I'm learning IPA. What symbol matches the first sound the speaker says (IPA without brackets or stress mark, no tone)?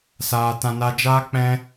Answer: s